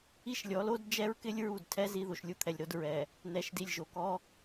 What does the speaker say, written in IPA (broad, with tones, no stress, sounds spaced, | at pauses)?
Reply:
i˦ ʃ lʲ ɔ˨˦ l o˦ d d͡ʒ ɛ˦ ɹ k ɪ˦ lʲ ɹ u˦˨ d tʰ ɛ˦ z i˦ ð o˨ ʃ lʲ u˦ t̪ʰ ɛ˨ lʲ ɾ o˦ d ɹ ɛ˨ | n ɛ˨ ʃ d i˨ lʲ ʒ o˨ k ɔ˦